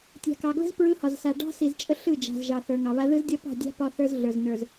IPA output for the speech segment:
tʲ a̤˨ k ɑ˨ ɡ l ə̤˦ z p ɹ ɯ˦ h ɒ˨ z s a˨ ɖ ɑ̤˦ s i˨ z t͡ʃʼ ə˦ ɬ ɯ˦˨ d͡ʒ a̤˨ z ʒ ɑ˨ θ ə˞˨ ŋ ɑ˨ β a˦ ð ɯ˦ z dʲ ɒ˦ p ɑ̤˦˨ dʲ a̤˦ p ɒ˦ θ ə˞˦ z ɮ ə˞˨ z n ə˞˨ z

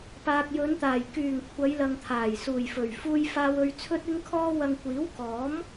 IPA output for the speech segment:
p aː˨ k̚ j ɵ˨˧ n t̪ aː˨˩ j k yː˨˩ ŋ kʷʰ ɐ˨˧ j l ɐ˨ ŋ t̪ʰ aː˨˩ j s uː˨˩ j f ɵ˨˩ ɥ f uː˧ j f aː˧ w ɵ˧ ɥ t͡sʰ ɵ˥ t̚ ɪ˥ ŋ kʰ ɔː˥ w ɐ˧ ŋ kʷ iː˨˥ w k ɔː˨˥ m

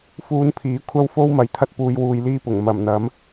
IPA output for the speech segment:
f uː˧ n pʰ iː˨˥ kʷʰ ɐ˥ w f o˥ w m ɐ˨˥ j t̪ʰ ɐ˧ t̚ p uː˨˧ j w uː˧ j l iː˥ p ʊ˨˩ ŋ m ɐ˨˩ m n̪ ɐ˨˥ m

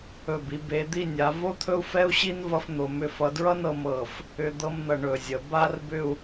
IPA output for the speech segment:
ɵ˧˩ b i˩˧ b e˩˧ d̪ i˥˧ nʲ a˩˧ v o˥ t̪ʰ ɵ˥ u̯ f ɛ˥ u̯ ɕ i˥ n v ʌ˥ f n̪ o˩˧ m ʏ˥˧ f ʌ˩˧ d ɹ ʌ˥ n ɤ˩˧ m ɤ˧˩ f | ʏ˧ d̪ ɤ˥ m n̪ ʌ˧˩ ɳ ɵ˧˩ zʲ ə˩˧ b a˥ r b ʏ˥˧ u̯

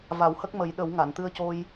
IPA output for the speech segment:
v a˨˩˦ w h ə˦˥ k̚ m ə˨˩˦ j ɗ ə˨˩˦ w ŋ a˨˩˨ n t̪ ɨ˧ ə̯ c o˧ j

